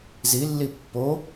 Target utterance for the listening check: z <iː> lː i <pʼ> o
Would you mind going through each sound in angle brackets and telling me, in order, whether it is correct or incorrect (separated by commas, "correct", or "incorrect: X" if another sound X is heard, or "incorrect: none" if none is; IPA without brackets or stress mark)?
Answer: incorrect: i, incorrect: pː